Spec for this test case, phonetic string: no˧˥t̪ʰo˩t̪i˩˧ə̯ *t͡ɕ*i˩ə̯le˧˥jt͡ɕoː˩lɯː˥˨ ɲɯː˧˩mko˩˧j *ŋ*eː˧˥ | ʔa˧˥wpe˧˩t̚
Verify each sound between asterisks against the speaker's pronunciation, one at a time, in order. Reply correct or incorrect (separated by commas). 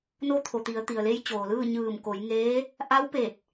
incorrect, correct